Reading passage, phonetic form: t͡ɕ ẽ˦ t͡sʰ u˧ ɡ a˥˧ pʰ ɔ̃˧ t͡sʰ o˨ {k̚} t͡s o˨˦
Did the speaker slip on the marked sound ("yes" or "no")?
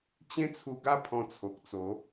no